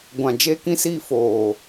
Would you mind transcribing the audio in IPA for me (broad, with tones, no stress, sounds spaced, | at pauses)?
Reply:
ɡʷ ã˨ d͡ʒ e˧ k ĩ˧ s iː˧ f oː˨